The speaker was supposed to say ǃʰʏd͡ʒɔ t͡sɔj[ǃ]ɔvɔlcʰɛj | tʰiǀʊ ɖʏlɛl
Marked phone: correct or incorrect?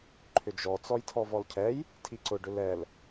incorrect